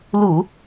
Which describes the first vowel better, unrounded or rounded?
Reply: rounded